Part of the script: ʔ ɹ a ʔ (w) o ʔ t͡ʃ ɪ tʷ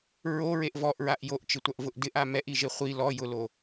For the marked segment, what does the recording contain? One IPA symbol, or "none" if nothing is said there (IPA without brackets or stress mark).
j